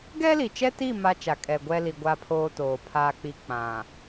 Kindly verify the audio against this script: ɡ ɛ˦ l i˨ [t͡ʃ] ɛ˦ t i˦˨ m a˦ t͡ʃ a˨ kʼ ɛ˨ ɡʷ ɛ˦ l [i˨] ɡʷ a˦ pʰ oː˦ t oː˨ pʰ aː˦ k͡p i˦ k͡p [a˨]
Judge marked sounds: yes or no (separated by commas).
yes, yes, no